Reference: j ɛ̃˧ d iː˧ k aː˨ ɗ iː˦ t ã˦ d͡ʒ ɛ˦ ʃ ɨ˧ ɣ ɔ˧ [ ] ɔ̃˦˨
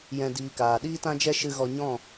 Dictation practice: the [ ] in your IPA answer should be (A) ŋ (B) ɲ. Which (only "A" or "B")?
B